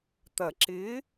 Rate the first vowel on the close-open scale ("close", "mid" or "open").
open